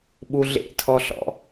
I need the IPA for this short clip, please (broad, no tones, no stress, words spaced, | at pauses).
ɓuɮḛtʰɔɬɔ̰